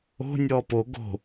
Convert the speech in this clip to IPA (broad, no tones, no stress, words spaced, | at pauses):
o̤ nʲɔːpo ɡo̤